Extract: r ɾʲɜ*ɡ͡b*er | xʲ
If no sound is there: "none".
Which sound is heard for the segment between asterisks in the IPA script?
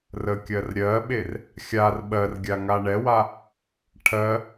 ɓ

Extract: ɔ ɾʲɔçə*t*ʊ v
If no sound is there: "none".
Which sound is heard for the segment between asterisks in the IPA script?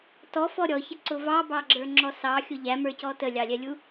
ǀ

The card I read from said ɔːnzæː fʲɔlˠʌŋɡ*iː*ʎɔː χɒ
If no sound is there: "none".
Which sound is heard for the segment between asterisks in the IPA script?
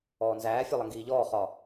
iː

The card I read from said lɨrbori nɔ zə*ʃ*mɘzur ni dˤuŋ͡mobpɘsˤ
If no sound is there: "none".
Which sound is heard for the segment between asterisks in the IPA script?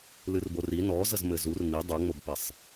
z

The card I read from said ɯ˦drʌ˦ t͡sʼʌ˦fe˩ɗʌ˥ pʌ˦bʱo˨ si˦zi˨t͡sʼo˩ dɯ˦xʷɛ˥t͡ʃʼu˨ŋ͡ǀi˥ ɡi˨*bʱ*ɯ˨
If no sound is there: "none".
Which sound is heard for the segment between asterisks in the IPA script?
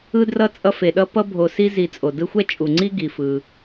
f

